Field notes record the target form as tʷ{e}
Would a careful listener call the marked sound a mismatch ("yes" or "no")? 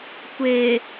no